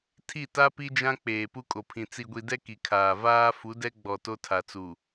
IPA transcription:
tʰ i˦˨ t a˦ p i˦ d͡ʒ ã˦ k͡p eː˨ p u˦ kʼ o˨ pʰ ĩ˨ t͡s i˨ ɡʷ i˨ d ɛ˦ k i˨ kʰ aː˨ v aː˦ f u˨˦ d ɛ˦ ɡ͡b ɔ˨ t o˦ tʰ a˨ t͡s u˨

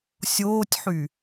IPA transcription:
sʲ oː tʲ ħ y

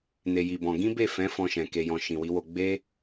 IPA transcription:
n e˧ j i˧ b ɔ̃˧ ɡ ĩ˦ b e˦˨ f ɛ̃˨˦ f ɔ̃˧ ʃ ɛ̃˨ k e˨ j ɔ̃˨ ʃ ĩ˨ w i˨˦ w o˧ ɡ͡b e˦

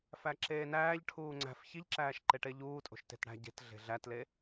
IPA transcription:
f æ ǁ eː n æː ʎ ʈʰ uː ŋ͡ǀ æ̤ f ç i ʎ ǁ æː ʃ ǃ e ʈ e ʎ uː tʼ o̤ ʃ t e̤ t ɽ æ̤ ɟ e̤ t ɮ e̤ ɮ æ t l e

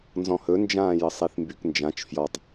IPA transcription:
n z ɔ̃ h ɵ n d͡ʒ ãː j ə sˤ i θ m b y k n d͡ʒ ã t͡ʃ f j ɔ tˤ

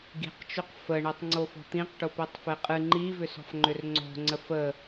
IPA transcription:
ɡ i̤ q t͡ʃ o q f ə ɳ i tˤ ŋ͡ǀ o f ɔ̤ t̪ ĩ q ʈ o p i tˤ f e qʼ ɨ ŋ͡ǃ i v ʏ s ɔ̤ f ŋ͡ǃ ʏ r ŋ͡ǀ o̤ ŋ͡ǀ ə f ə

